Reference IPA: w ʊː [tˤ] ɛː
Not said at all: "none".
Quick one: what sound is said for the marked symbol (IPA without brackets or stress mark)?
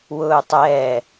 tˤ